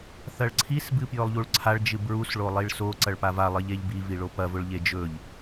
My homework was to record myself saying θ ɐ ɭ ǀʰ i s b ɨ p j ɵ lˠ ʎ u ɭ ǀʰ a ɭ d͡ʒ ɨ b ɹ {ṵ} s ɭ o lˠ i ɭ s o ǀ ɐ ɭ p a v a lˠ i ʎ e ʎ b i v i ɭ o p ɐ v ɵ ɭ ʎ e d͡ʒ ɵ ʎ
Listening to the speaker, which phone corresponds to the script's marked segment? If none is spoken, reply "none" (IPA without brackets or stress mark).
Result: u